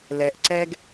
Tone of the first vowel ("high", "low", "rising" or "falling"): low